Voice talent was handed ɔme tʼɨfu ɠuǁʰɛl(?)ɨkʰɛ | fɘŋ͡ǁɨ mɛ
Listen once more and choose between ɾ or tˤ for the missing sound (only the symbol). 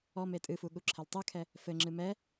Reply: tˤ